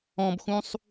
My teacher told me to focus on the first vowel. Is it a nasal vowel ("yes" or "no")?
yes